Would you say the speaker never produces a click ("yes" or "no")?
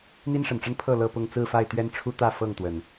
yes